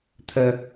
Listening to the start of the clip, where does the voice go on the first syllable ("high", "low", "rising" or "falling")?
high